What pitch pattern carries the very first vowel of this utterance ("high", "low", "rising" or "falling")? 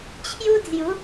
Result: high